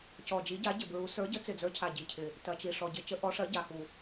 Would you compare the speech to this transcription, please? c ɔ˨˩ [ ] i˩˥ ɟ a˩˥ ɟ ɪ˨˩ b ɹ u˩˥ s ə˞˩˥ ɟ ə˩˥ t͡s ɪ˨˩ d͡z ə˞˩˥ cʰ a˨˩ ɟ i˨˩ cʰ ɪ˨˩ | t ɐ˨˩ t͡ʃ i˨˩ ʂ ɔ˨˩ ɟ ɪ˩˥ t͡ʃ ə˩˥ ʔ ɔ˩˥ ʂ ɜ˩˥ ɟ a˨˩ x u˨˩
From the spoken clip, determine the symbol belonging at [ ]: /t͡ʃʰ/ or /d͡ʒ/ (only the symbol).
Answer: d͡ʒ